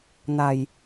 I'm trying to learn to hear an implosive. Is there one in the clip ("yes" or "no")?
no